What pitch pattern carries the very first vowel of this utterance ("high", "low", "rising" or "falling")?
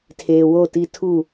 low